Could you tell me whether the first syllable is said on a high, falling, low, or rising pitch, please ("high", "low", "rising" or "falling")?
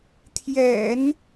low